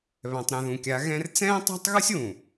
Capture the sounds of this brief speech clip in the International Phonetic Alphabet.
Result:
βɛ̃˨tˤɾɛ̃˨ðũ˨kʲa˨˦ ɣɛ̃˦r t͡sɛ̃ː˦tˤa̤˦tˤɣu˦sʲ wũ˨

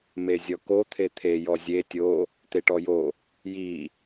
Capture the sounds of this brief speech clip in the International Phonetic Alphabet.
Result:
mezʲɔko t̪ʰet̪ʰe jɔzʲe tʲo | t̪eʈɔjo | ji

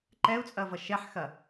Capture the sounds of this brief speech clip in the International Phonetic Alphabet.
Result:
ǃɛu̯t͡sʼɐvʌ ʃɛħxɐ

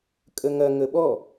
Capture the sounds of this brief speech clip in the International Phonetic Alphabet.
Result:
kʼəŋɐ ŋəɓɔ

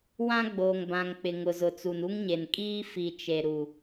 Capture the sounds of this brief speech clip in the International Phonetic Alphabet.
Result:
wã˦ɡ͡boː˨ŋ bã˨ŋk͡pɪ˨ ŋʊ˨zʊ˨t͡su˨n u˦ŋɲe˨n kʼiː˦ fi˨ t͡ʃe˨ ɾu˨

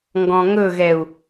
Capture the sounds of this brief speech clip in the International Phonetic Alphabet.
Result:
ŋɡɔ̃ŋɵɣɛu̯

